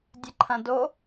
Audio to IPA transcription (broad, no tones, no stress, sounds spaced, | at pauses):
dʲ ə ǃʰ ɐ̃ d o